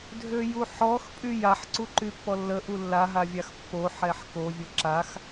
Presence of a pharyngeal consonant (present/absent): present